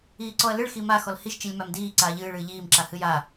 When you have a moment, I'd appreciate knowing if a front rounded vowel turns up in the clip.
no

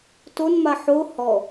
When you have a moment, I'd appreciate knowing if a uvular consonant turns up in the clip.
no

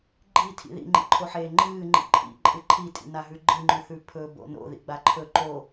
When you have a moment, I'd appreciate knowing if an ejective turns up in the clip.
yes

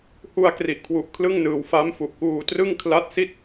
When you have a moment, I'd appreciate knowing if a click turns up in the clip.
no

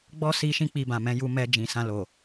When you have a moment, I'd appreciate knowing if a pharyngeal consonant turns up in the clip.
no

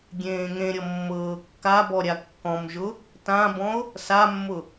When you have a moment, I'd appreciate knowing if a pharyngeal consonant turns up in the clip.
no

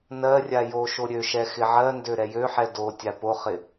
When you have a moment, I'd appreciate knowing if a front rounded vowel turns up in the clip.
yes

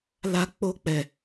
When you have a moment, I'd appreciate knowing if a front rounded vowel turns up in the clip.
no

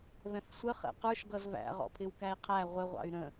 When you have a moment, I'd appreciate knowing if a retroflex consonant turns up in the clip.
no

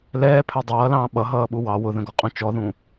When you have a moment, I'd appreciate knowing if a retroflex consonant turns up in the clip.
no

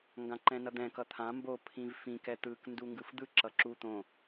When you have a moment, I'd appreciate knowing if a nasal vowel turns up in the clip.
yes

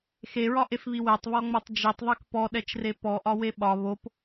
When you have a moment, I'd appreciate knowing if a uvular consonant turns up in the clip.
no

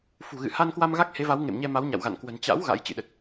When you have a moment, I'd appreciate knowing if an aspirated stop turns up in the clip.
no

